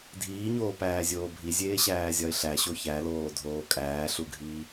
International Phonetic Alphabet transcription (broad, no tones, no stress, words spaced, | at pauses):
dʱiːɲoːpæːzʲoː bʱizʲeːɕæːzʲɒɪ̯ ɬæɕo çæloːdʱoː kʼæːɬuɡʱiː